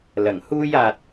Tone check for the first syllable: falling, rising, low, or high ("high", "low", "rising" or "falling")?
low